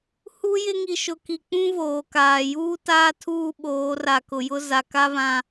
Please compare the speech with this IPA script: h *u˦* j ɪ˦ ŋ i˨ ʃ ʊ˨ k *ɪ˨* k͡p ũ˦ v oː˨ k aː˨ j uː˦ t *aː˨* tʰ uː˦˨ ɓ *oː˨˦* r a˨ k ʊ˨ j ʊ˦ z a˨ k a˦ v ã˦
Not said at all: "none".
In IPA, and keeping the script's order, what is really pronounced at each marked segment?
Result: u˦, i˨, aː˦, oː˨˦

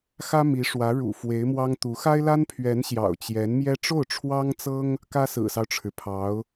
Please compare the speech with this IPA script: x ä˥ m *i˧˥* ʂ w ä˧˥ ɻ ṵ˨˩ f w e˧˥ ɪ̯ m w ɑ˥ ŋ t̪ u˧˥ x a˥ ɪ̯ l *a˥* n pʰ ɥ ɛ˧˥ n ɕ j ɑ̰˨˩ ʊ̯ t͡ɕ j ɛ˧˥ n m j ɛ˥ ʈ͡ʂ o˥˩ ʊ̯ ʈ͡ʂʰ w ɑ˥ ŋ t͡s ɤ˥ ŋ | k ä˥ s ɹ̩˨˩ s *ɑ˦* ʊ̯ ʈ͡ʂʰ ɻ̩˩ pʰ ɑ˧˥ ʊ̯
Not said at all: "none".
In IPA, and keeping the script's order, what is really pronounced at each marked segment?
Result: i˧˥, a˥, ɑ˦

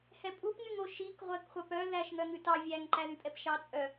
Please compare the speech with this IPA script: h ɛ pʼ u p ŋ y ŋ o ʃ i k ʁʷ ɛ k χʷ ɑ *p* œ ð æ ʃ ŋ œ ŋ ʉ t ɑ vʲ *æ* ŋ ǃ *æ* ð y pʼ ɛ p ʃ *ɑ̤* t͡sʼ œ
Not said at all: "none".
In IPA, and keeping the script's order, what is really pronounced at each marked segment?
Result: p, æ, æ, ɑ

